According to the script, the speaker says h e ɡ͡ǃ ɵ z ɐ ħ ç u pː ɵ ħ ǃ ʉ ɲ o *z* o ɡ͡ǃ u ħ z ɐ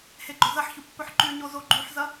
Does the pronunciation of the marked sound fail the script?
no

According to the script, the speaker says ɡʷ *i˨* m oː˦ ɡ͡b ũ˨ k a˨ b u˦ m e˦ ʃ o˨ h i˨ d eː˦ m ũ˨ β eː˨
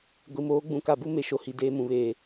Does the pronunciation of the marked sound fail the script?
no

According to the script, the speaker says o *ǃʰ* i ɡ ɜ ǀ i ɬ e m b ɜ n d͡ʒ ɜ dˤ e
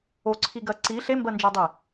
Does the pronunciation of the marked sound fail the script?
yes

